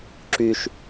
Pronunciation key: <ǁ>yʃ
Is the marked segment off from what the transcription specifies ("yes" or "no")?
no